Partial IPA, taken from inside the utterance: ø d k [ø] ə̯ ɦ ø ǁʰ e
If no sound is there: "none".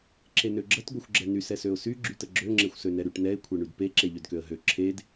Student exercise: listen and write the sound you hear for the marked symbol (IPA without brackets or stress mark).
ø